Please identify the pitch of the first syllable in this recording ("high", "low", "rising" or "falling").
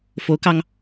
rising